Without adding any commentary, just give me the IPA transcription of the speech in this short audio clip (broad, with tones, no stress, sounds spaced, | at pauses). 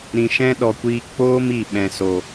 ɾ ĩ˨ ʃ ɛ̃˦ ɗ ɔ˨ kʷ iː˧ k͡p oː˦ m i˨ ɓ ɛ̃˨ s o˨